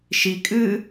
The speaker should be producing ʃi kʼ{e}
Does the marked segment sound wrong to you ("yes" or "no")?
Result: yes